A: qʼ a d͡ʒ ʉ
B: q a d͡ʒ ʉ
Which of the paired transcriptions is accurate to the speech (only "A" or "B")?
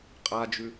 A